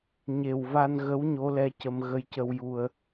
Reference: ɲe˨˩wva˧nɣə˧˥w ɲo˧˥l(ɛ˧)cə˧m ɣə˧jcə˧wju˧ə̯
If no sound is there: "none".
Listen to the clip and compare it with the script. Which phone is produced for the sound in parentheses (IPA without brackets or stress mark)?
ɛ˧